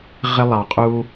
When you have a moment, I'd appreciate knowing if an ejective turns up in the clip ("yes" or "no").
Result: yes